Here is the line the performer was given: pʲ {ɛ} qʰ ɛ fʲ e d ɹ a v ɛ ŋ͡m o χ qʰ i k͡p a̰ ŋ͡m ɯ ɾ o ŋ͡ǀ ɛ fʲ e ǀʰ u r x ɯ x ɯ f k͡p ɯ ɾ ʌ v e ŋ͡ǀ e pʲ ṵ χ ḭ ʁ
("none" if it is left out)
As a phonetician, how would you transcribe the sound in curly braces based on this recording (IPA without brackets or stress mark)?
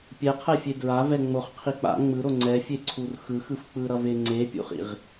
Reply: ɛ